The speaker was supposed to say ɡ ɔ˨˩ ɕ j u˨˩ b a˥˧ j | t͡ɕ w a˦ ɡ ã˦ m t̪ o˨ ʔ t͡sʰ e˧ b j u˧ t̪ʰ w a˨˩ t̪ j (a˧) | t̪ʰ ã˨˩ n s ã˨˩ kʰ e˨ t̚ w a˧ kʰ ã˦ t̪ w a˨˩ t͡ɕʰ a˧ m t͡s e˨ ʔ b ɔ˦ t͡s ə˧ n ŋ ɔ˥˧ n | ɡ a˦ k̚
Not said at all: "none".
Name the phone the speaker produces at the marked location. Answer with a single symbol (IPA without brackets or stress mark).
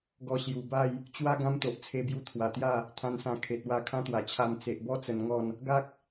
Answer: a˥˧